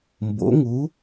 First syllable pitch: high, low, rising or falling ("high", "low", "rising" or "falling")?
rising